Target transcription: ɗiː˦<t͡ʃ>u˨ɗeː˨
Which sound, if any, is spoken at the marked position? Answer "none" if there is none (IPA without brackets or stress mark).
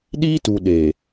t